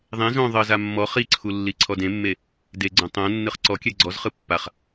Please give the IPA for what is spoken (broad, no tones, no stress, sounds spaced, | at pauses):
ðˤ ẽ z õ ðˤ ɤ z a mː ɔ χ i ǀʰ u lː i ǀʰ ɔ d ẽ mː e | d e ɡ͡ǀ õ tˤ õ nː ɯ χ ǀ ɔ kʲ ɛ ɡ͡ǀ ɔ z χ ɯ pː a χ